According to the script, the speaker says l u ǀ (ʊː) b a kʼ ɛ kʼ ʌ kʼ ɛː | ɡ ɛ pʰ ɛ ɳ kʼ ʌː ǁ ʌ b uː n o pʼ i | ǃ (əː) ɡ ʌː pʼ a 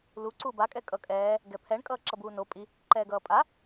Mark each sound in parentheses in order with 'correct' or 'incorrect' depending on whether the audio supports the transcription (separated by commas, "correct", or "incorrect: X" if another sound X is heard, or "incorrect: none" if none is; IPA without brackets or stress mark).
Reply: incorrect: uː, incorrect: ɛː